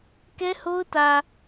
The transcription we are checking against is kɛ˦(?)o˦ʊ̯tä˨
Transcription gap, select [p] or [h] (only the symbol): h